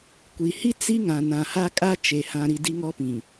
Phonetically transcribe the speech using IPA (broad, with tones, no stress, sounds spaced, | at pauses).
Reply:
kʷ i˨ h i˦ t͡s i˦ ŋ ã˨ n ã˨ h a˦ kʼ a˦ t͡ʃ e˨ h ã˨ ɾ i˨ d i˦ ŋ ɔ˦ p ĩ˨